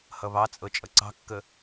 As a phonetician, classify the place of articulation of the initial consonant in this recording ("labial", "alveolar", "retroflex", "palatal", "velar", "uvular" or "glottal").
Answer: glottal